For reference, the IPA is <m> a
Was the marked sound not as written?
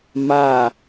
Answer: no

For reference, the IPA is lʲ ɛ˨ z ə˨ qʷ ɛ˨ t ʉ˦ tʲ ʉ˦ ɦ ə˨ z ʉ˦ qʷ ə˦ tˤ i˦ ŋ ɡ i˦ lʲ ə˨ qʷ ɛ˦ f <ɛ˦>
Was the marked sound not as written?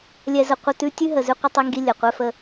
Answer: yes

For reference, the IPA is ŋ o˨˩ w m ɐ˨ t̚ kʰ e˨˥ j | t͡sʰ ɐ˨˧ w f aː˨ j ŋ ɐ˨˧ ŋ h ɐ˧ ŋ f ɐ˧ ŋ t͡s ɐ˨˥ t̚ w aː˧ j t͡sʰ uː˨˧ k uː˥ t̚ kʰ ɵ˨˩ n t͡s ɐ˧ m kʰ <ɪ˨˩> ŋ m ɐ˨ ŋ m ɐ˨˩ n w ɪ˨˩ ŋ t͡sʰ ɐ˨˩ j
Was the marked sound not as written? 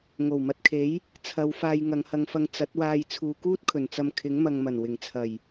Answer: yes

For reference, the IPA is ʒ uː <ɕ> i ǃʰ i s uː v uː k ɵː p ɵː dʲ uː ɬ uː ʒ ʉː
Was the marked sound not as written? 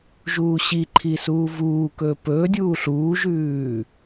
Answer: no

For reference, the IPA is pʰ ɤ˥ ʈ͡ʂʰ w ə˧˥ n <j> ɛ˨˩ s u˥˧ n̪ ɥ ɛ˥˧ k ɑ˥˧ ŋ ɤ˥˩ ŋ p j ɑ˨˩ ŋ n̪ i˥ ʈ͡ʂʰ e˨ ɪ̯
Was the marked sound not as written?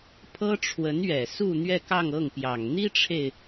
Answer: yes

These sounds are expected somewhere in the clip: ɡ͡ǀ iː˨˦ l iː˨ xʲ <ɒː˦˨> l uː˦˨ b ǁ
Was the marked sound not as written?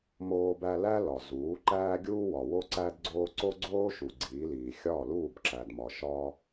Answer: no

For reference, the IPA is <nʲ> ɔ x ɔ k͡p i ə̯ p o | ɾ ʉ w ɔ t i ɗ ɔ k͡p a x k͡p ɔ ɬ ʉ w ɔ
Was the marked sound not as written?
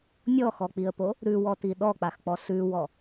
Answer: no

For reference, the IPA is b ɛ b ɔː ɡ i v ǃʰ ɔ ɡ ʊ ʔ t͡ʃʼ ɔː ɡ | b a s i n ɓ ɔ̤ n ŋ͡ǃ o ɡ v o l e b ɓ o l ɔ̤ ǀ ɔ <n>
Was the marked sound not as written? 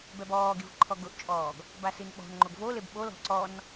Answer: no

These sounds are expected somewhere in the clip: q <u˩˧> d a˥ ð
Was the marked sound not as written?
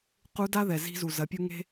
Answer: yes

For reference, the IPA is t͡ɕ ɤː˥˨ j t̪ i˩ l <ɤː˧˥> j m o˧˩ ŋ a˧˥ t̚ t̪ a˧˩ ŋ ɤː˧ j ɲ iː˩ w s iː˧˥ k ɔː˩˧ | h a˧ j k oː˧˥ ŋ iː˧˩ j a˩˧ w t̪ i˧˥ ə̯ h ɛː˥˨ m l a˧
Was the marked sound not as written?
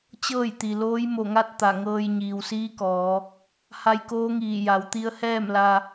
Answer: yes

